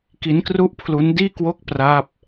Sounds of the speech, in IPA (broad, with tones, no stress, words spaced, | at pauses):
ki˦˥nkru˥˩ʔpʰlu˦˥n diː˥˩kwo˥˩k̚ pra˦˥p̚